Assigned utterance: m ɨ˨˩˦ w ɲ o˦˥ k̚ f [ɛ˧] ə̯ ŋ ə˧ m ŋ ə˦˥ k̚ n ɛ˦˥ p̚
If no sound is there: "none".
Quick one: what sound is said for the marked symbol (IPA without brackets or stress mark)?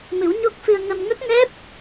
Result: ɨ˧